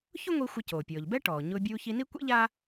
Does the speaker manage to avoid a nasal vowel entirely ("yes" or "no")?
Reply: yes